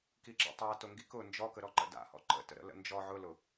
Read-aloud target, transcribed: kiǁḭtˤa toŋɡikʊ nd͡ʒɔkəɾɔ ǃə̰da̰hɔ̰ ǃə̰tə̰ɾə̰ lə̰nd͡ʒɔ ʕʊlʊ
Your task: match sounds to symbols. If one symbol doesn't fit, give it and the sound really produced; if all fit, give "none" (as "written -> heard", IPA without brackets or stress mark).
none